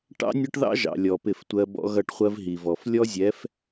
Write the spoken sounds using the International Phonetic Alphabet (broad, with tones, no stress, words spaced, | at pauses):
ʈɑ̰˦nʲɒ˦ʈðɑ̰˦ ʒɑ̰˨ lʲɔ˨pɪ˦˨ftʷɜ˦ bɔ̰˦ɣʌ˦˨ʈχʷɜ˦v ɦi˨vɔ˨f lʲɔ˦zʲɛ˨˦f